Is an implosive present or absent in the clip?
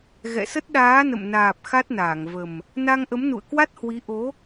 present